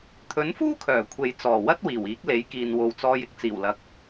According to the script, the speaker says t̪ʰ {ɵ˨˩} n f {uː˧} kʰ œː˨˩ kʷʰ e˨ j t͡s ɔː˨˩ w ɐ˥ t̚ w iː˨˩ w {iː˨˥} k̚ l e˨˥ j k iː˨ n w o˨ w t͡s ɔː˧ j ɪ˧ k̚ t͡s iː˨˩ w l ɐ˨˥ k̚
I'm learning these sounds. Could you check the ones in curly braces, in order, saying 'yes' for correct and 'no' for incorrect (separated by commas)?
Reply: no, no, yes